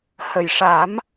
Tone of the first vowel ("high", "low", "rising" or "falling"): low